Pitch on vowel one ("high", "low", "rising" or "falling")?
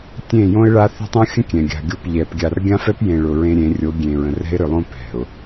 falling